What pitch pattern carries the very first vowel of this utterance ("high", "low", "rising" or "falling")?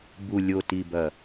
low